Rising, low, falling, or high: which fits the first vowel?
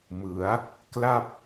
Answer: rising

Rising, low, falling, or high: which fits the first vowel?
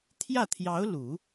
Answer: falling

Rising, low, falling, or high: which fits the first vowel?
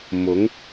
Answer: rising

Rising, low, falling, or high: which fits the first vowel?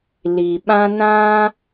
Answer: low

